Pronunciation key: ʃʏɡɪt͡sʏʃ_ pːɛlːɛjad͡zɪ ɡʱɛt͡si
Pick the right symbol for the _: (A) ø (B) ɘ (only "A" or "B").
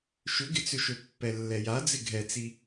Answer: A